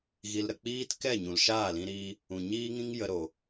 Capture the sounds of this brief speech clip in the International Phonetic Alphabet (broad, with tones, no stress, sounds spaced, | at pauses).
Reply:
ɣ i˧ l ɾ ə˧ k͡p iː˦ t k ɛ˦˨ ɲ ũ˨ l ʃ aː˦˨ l ĩ˧ ɾ iː˧ | ũ˨ ɲ iː˦ ŋ ĩ˦ ŋ j ə˧ ɾ o˨